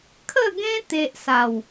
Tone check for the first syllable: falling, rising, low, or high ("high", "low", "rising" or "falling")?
falling